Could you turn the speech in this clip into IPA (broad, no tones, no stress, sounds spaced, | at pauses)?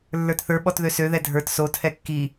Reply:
lː ə˞ t θ ə˞ ɓ ɔ t ð ø s ø ð ɛ dʱ ə˞ t s o tʰ ɛ kː i